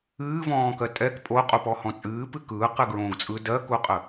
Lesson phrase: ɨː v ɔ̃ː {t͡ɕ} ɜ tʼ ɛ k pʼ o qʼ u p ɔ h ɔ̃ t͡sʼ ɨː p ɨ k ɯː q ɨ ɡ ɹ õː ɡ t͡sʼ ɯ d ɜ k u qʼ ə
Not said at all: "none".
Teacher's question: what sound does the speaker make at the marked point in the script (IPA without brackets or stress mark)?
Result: k